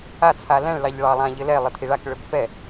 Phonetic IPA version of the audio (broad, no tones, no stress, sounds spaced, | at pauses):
a t͡sʰ a l ɛ̃ ɭ l ɑ ʎ ɭ ɑ lˠ ã ʎ ɘ l ɛ lˠ ə tʰ i ɭ a k ɭ ʏ b f ɛ